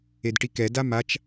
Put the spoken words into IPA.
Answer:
edʈikɛda mat͡ʃ

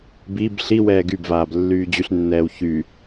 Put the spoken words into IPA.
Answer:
biːb ɬiwɛː ɡybvaːb lːyːd͡ʑyɬnːɛːw çy

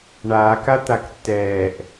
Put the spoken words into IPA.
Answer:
ɳaːk at̪aktːɛːʔ

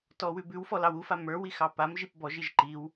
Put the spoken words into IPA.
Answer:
tɔwʉbʉwfɔ lɑwufa mə˞ wixɑpamʒip bɔʒiʒ ǃiw

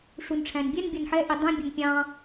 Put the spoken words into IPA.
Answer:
ʂunʈ͡ʂʰæ̃nbʲɛn bʲʌnħɛ ʔidˤũ bʲʌnpʲɑ̃

